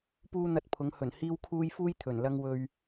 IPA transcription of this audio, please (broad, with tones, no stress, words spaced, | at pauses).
puː˥n̪ɐ˧t̚ pʰʊ˨˥ŋhɵ˨˩nhiː˥wkʰuː˥j fuː˥jt̪ʰɵ˨˩nlɐ˧ŋwɵ˨ɥ